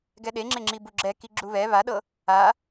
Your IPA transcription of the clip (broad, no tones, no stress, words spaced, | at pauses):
ɡɛɗeŋ͡ǁeŋ͡ǁi buɡ͡ǁɛ kiɡ͡ǁuβɛ βaɗɤ | a